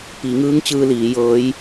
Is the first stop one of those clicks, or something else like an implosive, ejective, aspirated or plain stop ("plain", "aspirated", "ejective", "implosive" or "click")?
plain